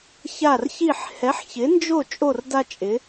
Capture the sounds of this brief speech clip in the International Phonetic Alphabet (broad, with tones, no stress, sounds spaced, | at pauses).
ç a˦˨ r ç i˦˨ ħ h ɛ˨˦ ħ ç ɪ˨˦ n d͡ʒ o˦˨ t͡ʃʼ o˦˨ r d a˦ t͡ʃʼ ɪ˨˦